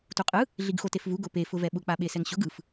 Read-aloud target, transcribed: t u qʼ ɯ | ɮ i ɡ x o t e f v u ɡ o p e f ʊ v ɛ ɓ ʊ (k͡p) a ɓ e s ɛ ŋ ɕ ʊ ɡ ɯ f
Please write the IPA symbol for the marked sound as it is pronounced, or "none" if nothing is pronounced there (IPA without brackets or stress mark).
k͡p